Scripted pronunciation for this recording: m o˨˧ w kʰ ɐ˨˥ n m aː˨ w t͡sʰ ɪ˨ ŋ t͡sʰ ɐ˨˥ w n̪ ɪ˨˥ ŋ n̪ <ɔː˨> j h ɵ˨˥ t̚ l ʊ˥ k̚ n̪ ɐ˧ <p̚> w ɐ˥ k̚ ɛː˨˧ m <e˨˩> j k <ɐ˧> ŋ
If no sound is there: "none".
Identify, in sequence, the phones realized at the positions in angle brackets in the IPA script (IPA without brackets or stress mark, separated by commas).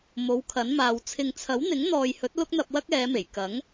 ɔː˨, p̚, e˨˩, ɐ˨˥